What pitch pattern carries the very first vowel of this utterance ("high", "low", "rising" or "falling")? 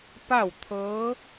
falling